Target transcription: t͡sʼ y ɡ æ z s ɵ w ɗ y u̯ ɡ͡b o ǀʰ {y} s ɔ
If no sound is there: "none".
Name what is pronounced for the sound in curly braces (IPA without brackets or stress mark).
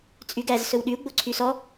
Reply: y